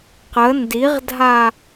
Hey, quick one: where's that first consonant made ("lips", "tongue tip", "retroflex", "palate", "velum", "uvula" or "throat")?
uvula